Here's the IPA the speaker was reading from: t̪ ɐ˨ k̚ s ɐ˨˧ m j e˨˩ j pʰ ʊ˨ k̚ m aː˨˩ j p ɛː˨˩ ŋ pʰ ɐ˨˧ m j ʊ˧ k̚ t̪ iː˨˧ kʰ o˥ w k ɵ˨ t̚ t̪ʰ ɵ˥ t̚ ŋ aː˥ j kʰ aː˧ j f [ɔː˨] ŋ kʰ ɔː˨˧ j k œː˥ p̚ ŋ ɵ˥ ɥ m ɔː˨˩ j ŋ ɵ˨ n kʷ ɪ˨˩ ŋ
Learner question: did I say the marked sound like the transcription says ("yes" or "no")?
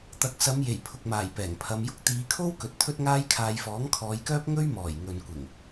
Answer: no